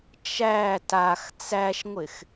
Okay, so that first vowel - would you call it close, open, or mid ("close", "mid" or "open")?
open